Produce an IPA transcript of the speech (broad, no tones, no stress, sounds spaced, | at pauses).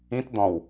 ĩ t d̪ ɔ̃ w